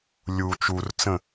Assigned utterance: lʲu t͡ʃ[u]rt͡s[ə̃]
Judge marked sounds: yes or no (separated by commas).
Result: yes, yes